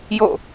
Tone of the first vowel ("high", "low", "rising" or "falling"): falling